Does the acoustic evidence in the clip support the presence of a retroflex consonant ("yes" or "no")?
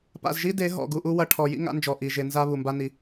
yes